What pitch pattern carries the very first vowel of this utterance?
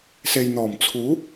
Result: low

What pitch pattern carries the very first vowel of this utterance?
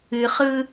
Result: low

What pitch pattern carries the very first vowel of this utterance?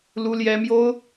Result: high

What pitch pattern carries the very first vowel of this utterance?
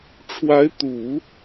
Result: rising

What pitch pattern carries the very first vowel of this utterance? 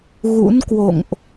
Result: rising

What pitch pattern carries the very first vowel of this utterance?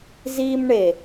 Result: high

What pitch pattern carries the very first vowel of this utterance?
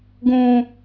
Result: low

